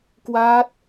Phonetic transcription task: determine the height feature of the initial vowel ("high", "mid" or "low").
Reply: low